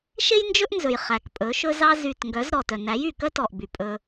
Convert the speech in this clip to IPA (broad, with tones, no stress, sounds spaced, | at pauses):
ʃ e˦ j n d͡ʒ ɵ˦ ʔ n z ɵ˨ j χ æ˨ k pʼ ɵ˨˦ ʃ ɵ˦ z ɑ˧ z y˨ t ŋ ɡ œ˨˦ z ɾ ɔ˨ t œ˨ n æ˨˦ j y˨ k œ˦ t ɔ˨ ʔ b y˨ pʼ ɵ˧